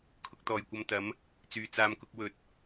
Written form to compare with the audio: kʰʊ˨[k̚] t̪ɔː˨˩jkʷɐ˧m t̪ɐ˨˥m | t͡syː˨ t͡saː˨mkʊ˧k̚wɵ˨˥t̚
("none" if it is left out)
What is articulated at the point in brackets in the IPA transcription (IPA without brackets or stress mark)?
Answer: k̚